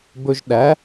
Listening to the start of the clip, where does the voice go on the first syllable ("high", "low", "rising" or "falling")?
high